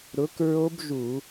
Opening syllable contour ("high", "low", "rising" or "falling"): rising